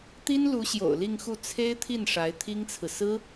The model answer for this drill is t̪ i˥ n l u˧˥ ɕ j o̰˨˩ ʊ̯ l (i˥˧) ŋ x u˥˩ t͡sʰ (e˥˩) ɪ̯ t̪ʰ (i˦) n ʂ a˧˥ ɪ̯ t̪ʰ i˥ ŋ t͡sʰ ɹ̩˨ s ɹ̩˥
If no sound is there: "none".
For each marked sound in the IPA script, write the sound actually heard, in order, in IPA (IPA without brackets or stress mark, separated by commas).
i˥˧, e˥, i˥˩